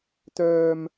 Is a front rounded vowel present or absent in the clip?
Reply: present